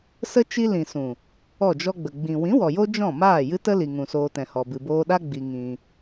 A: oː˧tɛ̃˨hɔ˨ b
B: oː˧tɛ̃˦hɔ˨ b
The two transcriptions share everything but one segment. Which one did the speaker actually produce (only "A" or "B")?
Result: A